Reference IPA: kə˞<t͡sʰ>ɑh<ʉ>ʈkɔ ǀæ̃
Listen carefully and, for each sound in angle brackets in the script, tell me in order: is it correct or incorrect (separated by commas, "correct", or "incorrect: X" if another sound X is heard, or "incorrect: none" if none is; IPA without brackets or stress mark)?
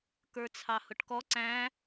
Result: correct, incorrect: ʊ